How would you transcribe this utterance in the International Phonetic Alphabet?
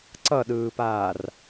ǀʌɗɯːpaːr

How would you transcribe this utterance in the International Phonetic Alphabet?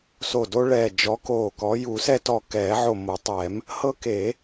so˧˩do˦ɭɛː˧˩ d͡ʒɔ˨˦koː˧˩kɔ˨˦ ju˨˩˦sɛ˦tɔ˧˩ kɛː˨˩˦ʕo˧˩mo˨˩˦tˤɛː˨˩˦m | hɤ˦ke˨˩˦

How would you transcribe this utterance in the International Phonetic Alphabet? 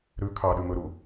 ɾʉ kʰɑɗʉm ɵɾu

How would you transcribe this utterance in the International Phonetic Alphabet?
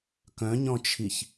kœ̃ɲɔ̃t͡ʃʰiç

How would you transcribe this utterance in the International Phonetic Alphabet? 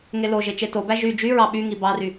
ŋeloʒe t͡ʃetobæ ʒy d͡ʒyɹɑ ɓy ŋibɑry

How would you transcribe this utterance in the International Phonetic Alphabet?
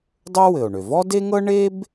dˤø˥wɘ˩o̯ɳø˩ vɔ˥de˥ŋɤ˥ ɳe˥b

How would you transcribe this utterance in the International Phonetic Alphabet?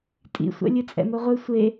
tʼḭsʷɛ̰ lʲɨt͡sʼɛ̰moʁʷɨ sʷe

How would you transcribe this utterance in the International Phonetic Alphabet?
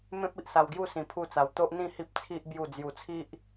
mẽ˦p̚i˨ʔsa˧wɡju˥˧ sĩ˧pʰu˥˧t͡sa˧w t̪o˦ʔn̪ĩ˥˧ hi˦p̚t͡sʰi˦ʔ bju˥˧ d͡zju˧t͡sʰi˦ʔ

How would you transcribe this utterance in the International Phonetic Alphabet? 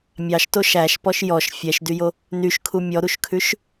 mʲɑʃto ʃæʃpɔʃ jɔʃ fʲɛʃdyjo | nyʃkʰu mʲɔɾuʃkʰʉʃ

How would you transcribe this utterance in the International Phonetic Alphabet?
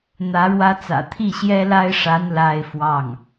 n̪ä˧˥ɻwä˥t͡sä̰˨˩ t̪ʰi˥˩ɕjɛ˥la˥ɪ̯ʂa˧˥n la˥ɪ̯fwɑ˥˩ŋ

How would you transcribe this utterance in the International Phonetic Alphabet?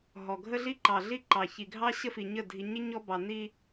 ɦɔ˨ɡʱə˦ɮi˦ ǃɑ˨ɮi˦ ǃɑ˨ çi˨ɡʱɑ˦ ɕə˦fi˨ɲə˦˨ dʱi˨ɲɪ˦ ɲɔ˦bɑ˨ni˦

